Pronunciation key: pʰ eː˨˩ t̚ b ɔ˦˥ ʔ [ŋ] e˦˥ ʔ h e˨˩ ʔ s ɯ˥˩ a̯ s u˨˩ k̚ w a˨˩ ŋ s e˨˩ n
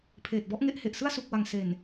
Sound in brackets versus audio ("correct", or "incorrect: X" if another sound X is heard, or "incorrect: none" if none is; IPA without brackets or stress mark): correct